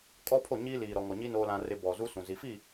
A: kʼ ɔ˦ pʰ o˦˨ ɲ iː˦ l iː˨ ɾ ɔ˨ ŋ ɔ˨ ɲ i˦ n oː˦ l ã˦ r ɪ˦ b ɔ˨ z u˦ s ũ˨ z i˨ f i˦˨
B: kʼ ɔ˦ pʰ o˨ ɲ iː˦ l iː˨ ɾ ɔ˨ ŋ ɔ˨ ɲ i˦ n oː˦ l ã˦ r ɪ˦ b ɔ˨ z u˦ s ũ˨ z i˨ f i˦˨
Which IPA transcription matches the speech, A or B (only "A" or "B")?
A